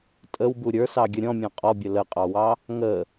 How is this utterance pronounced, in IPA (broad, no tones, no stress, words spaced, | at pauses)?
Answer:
tʼəwbu ɾʲə˞sɑɡʲə ɾʲɔ̃mʲɑ̃ qʼɔbʲə ləqʼɑwɑ | ŋə